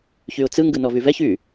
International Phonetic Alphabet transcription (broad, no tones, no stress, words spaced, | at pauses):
çyʊ̯t͡sɯ ŋɡɯnɔvyvɛç y